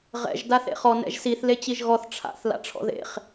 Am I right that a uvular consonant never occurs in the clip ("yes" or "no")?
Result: no